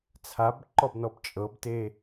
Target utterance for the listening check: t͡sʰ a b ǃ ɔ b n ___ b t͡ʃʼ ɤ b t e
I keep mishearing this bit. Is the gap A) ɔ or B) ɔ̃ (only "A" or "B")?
A